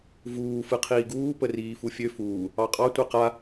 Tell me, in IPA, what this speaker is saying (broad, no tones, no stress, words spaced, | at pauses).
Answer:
vuː fɯqʰiːɡuː pəriːfufʲø fuː | ɑqʼɑ tʷɛqa